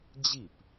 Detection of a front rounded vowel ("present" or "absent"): absent